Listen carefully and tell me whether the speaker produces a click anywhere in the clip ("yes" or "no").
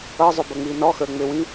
no